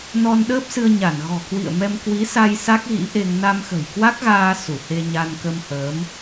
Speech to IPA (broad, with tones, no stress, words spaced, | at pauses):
nɔ˧nɗəː˦˥p̚sɨ˧ə̯ɲa˧˩n ɣɔ̤˨˩kwḭ˧˨ə̯mɛ˧m kwi˨˦sa˧j sa˦˥k̚ɣḭ˧˥ʔe˧ŋ na˧mxə̤˨˩jkwa˦˥k̚ɣaː˧ su˧˩ he˧ ɲa˧nkə˧mhəː˨˦m